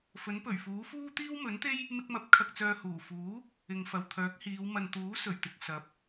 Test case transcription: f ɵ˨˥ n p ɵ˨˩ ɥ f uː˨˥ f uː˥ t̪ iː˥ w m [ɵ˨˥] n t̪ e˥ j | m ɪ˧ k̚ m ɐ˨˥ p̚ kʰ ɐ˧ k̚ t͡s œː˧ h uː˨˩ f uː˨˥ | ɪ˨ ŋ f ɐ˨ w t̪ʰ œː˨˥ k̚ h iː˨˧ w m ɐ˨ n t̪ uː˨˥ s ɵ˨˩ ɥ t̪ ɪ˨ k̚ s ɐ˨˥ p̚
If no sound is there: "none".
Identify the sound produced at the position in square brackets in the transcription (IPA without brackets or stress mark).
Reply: ɵ˨˥